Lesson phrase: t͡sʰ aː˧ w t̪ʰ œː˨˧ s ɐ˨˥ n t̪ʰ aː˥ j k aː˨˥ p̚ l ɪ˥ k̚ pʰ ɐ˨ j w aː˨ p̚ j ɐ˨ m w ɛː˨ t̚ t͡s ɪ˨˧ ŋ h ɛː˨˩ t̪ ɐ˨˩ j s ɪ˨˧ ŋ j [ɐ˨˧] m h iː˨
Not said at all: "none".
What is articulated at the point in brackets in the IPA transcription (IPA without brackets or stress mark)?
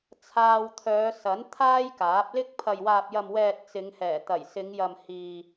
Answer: ɐ˨